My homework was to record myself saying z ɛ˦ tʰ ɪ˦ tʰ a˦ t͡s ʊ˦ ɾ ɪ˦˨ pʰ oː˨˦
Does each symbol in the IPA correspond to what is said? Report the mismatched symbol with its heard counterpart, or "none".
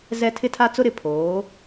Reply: none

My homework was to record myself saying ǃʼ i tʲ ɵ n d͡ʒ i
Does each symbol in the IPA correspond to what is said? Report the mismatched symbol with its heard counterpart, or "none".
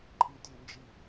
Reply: none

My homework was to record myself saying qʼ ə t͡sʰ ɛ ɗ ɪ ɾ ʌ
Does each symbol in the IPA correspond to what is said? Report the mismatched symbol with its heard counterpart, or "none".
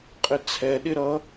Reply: ə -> ɪ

